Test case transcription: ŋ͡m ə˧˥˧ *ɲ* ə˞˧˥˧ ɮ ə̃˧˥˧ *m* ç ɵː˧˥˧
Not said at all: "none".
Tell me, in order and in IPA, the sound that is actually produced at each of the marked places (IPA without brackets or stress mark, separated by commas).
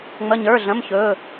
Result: ɲ, m